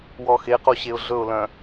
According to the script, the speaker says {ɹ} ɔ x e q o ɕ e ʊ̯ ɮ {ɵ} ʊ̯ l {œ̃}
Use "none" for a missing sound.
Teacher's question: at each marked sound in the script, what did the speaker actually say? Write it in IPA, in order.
w, ɵ, œ̃

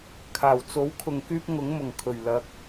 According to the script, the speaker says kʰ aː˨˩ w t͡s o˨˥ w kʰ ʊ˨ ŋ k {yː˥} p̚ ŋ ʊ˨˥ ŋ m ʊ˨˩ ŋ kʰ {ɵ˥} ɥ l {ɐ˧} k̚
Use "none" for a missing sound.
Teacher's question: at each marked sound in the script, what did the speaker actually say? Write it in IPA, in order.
yː˥, ɵ˨˩, ɐ˧

